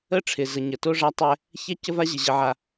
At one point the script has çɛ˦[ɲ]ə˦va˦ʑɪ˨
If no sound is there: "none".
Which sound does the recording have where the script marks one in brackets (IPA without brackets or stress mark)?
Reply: c